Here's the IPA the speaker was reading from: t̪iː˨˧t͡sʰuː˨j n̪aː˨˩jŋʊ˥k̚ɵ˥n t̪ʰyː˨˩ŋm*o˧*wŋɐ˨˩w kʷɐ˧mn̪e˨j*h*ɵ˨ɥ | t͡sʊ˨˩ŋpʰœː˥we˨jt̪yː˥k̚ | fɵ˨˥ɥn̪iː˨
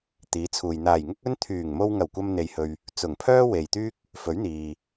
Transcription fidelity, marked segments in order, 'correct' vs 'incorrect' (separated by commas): correct, correct